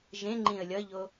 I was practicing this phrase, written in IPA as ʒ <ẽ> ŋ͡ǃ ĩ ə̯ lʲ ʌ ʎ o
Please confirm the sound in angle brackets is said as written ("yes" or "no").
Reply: yes